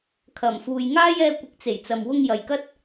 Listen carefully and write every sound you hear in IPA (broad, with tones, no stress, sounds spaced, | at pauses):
kʰ ɐ˨˩ m f uː˨ j ŋ aː˥ j ɛː˧ kʷ ɪ˨˥ k̚ t͡s e˨˩ j t͡s ɐ˨ m w ʊ˧ ŋ j ɐ˨ j k ɐ˥ t̚